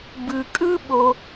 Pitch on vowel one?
low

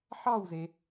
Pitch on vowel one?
falling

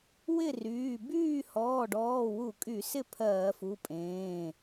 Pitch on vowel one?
falling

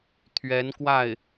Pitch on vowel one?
rising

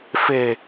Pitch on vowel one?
low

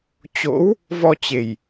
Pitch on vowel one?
rising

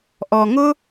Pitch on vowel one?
low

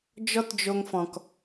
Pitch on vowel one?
high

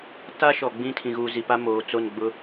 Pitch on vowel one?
high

